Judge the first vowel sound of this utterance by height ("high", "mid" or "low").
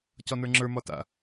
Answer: low